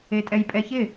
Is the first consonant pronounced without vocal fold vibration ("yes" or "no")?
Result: yes